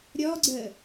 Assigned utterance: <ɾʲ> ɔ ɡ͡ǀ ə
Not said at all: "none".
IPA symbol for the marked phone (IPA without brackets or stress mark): ɾʲ